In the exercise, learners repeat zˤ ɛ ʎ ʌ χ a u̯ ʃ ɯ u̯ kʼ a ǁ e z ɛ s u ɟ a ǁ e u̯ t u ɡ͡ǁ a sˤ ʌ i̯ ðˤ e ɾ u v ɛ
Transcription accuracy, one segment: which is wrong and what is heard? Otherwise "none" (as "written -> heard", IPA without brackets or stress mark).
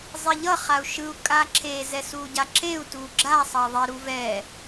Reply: none